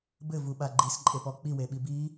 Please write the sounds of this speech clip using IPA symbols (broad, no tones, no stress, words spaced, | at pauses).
bɘvuɓa ɡ͡ǃisǃʼepɔ k͡piweɓi bi